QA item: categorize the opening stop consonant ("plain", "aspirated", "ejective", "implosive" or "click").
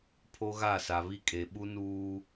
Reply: aspirated